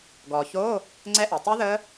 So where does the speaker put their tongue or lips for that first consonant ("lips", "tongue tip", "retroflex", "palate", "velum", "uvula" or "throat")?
velum